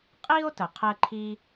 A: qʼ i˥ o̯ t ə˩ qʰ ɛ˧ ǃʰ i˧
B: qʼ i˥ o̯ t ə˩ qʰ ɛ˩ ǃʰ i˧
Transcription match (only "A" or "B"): A